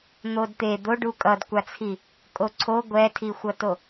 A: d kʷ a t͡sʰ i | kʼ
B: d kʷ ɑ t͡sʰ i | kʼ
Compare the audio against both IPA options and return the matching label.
A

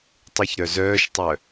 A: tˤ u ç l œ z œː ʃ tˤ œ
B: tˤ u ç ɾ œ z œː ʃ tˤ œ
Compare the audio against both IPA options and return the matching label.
B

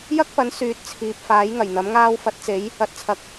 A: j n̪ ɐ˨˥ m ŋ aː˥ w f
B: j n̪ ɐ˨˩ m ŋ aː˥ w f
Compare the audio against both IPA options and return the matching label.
A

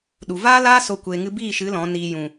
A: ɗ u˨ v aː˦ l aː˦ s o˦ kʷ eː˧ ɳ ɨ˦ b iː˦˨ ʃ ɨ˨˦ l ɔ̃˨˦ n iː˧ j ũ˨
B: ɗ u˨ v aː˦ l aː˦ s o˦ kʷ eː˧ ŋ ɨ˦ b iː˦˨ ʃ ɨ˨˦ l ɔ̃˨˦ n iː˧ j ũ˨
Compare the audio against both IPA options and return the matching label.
B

